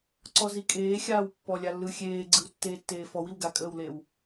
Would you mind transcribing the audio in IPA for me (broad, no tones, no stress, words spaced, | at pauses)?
ǀɔzikʼeːxʲaːw pːɔlʲalːɯ xʲeːɡ͡ǀɯw tːeːtːeːfɔw iwɡakʼəːwlew